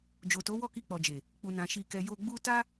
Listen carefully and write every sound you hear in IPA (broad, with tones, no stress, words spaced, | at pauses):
d͡ʒo˨to˨˦ wɔ˦˨ki˧k͡pɔ˨d͡ʒe˨ | k͡pu˨nã˨ ʃi˨kɛ˨ jo˧ɡ͡bu˦ ta˦